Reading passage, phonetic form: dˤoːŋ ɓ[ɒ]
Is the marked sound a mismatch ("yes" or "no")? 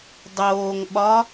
no